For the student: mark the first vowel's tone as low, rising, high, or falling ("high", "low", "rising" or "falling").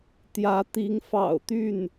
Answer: rising